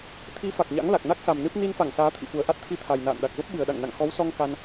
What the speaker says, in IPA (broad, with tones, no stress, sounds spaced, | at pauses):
t̪ʰ i˨˦ f a˨˩ k̚ ɲ a̰˧˥ ŋ l a˨˩ k̚ n a˦˥ k̚ s a˨˩ m n ɨ˦˥ p̚ n i˧ n f a˧˩ ŋ s aː˨˦ t̪ʰ ḭ˧˨ f u˨˩ ə̯ ʔ a˦˥ t̚ t̪ʰ i˧ t̪ʰ a˨˩ j n a̰ː˧˨ n ɗ a˨˩ k̚ v ə˦˥ p̚ ɓ ɨ˨˩ ə̯ ɗ a̰˧˨ ŋ n a̰˧˨ ŋ x ɔ˨˦ w s ɔ˧ ŋ k a˧ n